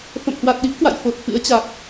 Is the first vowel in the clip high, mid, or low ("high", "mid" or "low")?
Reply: mid